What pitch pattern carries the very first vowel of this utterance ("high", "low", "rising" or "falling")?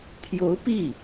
rising